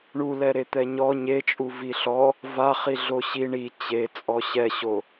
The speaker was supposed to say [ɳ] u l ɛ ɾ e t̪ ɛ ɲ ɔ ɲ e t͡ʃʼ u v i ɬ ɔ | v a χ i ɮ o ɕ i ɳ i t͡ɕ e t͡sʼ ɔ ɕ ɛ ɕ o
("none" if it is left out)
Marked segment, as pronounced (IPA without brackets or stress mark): ɳ